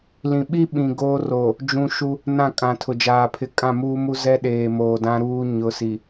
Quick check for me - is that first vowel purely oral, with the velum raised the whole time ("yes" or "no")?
no